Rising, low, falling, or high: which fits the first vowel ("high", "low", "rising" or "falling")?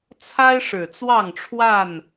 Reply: high